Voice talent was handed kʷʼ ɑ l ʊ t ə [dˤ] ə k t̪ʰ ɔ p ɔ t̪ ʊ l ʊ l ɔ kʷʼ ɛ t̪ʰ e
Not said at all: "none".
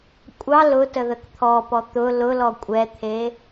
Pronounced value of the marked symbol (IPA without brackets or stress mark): ð